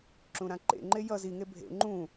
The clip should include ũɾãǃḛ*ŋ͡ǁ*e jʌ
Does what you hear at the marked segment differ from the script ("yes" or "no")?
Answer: yes